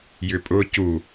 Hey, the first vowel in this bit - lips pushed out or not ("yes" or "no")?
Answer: yes